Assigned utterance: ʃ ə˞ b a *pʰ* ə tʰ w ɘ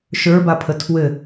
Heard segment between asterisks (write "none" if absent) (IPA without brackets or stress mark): pʰ